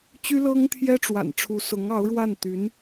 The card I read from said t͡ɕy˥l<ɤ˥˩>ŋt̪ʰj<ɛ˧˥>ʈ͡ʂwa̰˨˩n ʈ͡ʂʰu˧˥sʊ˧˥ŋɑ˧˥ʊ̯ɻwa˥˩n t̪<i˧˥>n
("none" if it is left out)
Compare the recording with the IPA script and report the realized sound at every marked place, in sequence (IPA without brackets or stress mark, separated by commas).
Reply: ɤ˥, ɛ˥, y˧˥